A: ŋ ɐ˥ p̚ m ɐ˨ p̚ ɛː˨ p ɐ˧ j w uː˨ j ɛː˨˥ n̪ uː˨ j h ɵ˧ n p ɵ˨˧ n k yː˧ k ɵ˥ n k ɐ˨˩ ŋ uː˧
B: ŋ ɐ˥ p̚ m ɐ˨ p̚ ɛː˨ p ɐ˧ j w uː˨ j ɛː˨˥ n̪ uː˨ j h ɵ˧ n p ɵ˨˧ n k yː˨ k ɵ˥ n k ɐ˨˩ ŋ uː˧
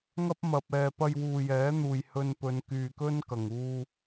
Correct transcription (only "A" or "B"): B